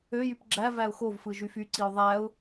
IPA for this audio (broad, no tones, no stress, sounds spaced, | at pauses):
ø j y p ɡ͡ǁ æ v æ ʊ̯ x o v f ɯ ʒ y f y ǀ i ʊ̯ ðˤ æ ʊ̯